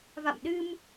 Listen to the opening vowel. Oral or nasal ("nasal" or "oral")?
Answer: oral